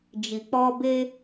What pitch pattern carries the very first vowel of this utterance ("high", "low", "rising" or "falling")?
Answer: low